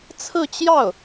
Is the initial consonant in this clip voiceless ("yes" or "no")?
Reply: yes